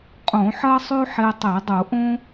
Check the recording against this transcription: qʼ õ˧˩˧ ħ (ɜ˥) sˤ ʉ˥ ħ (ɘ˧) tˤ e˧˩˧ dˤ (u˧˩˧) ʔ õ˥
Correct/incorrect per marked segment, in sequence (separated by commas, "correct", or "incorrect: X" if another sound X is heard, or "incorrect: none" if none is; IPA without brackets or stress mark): correct, incorrect: e˧, correct